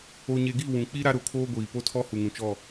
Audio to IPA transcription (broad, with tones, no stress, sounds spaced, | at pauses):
o˨ ɲ e˨ ɡ i˦˨ w ũ˨ k͡p i˦ ɾ a˦ ɾ ʊ˨ kʰ oː˦ ɡʷ iː˨ p o˦ tʰ ɔ˦ h u˨ ŋ ũ˨ t͡ʃ ɔ˦˨